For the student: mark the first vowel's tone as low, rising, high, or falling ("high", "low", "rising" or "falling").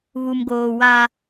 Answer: low